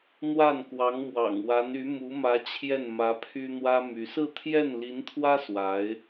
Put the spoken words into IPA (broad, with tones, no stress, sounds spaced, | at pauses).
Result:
n̪ w a˥˩ n k w ɑ˧˥ ŋ m w ɑ̰˨˩ ŋ w a˧˥ n y˧˥ m u˧˥ m ä˧˥ t͡ɕʰ j ɛ˥˩ n m ä˧˥ pʰ y˥ n̪ w ä˥ m y˧˥ s ɹ̩˥˧ t̪ʰ j ɛ˥˩ n l i˧˥ n t̪ʰ w ä˥ s w a˧˥ ɪ̯